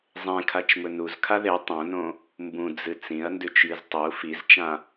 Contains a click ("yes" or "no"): no